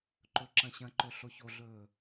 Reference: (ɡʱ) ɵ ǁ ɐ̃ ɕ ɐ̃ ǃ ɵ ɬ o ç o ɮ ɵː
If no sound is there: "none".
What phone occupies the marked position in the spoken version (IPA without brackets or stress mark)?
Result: ǃ